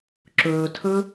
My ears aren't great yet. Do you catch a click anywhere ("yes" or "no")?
yes